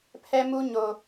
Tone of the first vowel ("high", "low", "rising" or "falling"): high